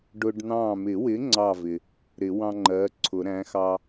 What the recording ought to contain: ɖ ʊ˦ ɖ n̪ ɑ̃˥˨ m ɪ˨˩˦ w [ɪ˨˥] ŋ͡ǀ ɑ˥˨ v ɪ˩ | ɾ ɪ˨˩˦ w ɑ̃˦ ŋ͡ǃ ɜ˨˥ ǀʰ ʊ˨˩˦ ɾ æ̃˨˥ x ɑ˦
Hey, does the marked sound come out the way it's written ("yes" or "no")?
yes